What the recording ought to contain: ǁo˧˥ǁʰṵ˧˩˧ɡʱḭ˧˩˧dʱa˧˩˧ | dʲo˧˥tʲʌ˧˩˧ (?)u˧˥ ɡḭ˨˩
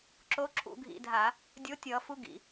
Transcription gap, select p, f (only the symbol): f